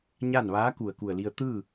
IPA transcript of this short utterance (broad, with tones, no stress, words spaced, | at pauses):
ɲa˥˨n ʋaː˧˥ ku˧˩ə̯ku˧˩ə̯li˧ə̯ t̪ɯː˥˨